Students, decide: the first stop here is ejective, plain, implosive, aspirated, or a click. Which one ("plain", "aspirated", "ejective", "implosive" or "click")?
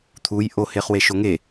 aspirated